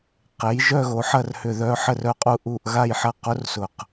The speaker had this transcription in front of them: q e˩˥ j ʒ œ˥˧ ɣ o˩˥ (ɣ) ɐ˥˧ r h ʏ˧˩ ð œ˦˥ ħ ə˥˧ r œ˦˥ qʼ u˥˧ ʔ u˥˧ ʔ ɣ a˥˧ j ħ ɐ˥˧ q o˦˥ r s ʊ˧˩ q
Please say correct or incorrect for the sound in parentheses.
incorrect